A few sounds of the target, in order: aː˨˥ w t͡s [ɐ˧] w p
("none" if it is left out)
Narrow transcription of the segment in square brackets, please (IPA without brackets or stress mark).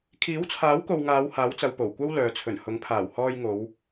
ɐ˨˧